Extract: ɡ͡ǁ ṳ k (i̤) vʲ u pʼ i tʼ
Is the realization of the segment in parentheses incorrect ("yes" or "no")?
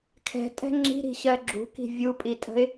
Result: no